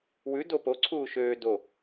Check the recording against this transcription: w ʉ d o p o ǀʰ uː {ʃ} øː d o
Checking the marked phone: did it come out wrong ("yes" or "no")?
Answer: no